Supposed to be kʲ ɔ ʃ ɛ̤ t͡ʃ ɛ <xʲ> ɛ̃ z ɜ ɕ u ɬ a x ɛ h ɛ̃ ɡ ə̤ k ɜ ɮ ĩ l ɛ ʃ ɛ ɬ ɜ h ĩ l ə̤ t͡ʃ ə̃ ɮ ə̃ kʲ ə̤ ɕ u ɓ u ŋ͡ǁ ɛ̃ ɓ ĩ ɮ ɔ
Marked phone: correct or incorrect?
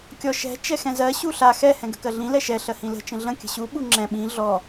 incorrect: x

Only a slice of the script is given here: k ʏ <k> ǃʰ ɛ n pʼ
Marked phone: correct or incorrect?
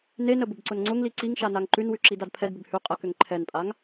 incorrect: ŋ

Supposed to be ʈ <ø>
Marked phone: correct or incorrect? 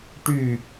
incorrect: y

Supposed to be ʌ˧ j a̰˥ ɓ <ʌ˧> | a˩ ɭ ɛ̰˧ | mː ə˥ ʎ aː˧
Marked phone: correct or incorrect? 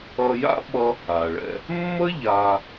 incorrect: ʌ˥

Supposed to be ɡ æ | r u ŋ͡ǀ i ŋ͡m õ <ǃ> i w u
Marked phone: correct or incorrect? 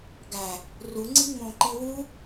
correct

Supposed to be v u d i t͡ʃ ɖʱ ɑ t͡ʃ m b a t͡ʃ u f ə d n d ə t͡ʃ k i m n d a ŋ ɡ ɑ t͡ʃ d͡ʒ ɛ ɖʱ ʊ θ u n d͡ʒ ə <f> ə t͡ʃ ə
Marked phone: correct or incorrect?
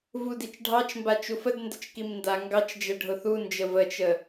incorrect: v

